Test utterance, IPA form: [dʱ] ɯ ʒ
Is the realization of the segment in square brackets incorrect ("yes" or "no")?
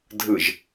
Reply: no